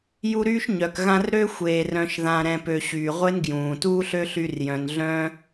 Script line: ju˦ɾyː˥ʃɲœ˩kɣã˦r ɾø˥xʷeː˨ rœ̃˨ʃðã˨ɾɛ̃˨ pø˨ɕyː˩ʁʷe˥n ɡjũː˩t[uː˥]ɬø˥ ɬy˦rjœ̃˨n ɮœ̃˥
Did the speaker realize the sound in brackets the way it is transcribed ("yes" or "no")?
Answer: yes